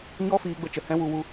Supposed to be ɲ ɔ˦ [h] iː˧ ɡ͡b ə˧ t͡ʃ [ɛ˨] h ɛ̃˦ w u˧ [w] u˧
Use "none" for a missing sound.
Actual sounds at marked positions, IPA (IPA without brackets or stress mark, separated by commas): f, ə˨, w